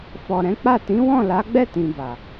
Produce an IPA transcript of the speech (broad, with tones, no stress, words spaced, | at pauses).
fɔ˨ɾɛ̃˨˦k͡pa˦˨ tĩ˨˦wɔ̃˦˨la˨˦ɡ͡bɛ˦˨ tĩ˨ba˨